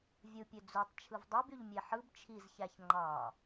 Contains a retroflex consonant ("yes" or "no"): no